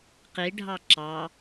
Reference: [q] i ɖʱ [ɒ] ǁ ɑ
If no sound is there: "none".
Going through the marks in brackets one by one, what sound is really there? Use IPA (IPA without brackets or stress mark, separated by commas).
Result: q, ɑ